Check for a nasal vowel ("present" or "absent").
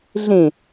present